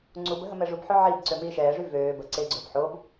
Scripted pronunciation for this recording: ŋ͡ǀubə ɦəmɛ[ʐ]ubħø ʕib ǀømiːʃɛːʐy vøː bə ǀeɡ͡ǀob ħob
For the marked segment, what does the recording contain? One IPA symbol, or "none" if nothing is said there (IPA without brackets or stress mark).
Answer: ʐ